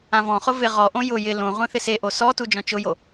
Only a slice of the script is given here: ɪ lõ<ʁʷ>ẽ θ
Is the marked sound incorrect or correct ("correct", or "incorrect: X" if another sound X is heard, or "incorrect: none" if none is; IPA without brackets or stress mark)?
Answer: correct